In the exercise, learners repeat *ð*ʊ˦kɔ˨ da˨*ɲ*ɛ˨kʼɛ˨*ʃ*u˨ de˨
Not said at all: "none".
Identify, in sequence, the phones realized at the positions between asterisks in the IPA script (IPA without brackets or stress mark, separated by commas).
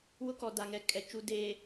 w, ŋ, t͡ʃ